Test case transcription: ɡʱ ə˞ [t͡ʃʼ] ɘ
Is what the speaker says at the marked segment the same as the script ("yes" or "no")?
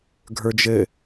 no